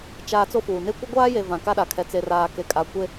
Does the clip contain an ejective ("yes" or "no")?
yes